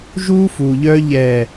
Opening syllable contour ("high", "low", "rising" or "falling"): high